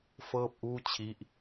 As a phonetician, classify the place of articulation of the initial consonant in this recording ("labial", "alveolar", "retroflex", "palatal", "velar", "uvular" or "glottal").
labial